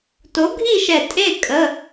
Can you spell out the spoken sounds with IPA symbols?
to˨˥ɡʱi˥˧ʃɛ˧˩ tʼe˥˧ kʼə˧˥˧

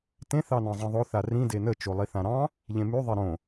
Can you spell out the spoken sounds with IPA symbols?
tẽ θɑnɑ̃zˤẽðˤo θarĩ denə t͡ʃolˠiθãɾɑ̃ | ʎẽmy ðˤeɾõ

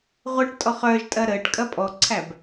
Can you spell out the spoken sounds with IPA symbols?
ʁʷɐʈ tʼɔχœːʒ tʼɐɾəːʈ kʼɐpʼɔǀʰæb

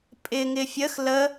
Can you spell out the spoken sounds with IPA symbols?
pʼɪŋɪ fʲəx lə

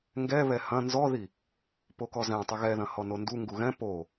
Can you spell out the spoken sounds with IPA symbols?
ŋɡɛ βɛhɐ̃ nzɔði | pokɔzɛ̃ tˤɵɣɛðɐ̃ hɔnondu ŋɡuɣɛ̃ po

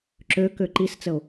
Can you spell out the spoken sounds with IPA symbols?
ǁøkø ǃist͡səo̯

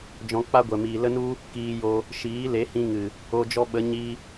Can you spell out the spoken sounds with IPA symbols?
d͡ʒɔ̃˧k͡pa˦ɡʷɛ˨ miː˨lə˦nu˦ | kiː˧jo˧ | ʃiː˨˦le˨˦hĩ˧ŋɨ˨ | o˧d͡ʒɔ˦ɓə˨˦ ɲi˦

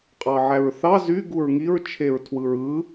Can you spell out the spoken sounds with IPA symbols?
qʼɑʕæɹθɑ zy ɡuɹŋiɹ t͡ʃʰeɹtʰwɯɹɯ

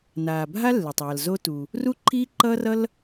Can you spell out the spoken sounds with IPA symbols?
naː˩bʱa˥ lːe˩tˤwʌ˩lzo˥tu˩ | ru˥ǃʰiː˥ǃʌː˥rʌ˥l

